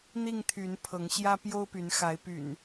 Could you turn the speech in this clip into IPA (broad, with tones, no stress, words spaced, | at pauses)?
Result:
n̪i˥˨ŋt̪ʰy˨˦n pʰɤ˨˦ŋɕjä˦ pjo˦ʊ̯py˨˦n xa˨˦ɪ̯py̰˨˩n